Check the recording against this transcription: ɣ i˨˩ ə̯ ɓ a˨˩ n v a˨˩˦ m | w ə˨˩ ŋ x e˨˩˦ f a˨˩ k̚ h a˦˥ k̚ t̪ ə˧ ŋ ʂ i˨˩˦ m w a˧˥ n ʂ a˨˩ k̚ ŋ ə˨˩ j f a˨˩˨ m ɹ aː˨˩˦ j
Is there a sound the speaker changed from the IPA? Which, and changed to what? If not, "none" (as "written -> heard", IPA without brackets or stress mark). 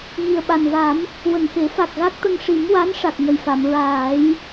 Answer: h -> ɣ